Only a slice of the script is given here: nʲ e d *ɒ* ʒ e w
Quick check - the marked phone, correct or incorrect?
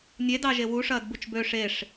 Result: incorrect